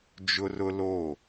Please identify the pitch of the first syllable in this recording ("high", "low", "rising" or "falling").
high